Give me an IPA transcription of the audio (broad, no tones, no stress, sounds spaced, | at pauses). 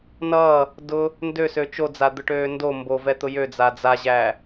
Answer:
n ʌː | d ʊ | n d ø s ø t͡ʃ o d͡z a d̪ ʊ ʈ øː n d o m b o v ɛ t̪ ʊ j ø d͡z a d͡z a ʑ æ